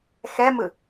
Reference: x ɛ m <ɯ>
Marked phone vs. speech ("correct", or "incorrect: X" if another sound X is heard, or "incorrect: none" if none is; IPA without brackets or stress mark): correct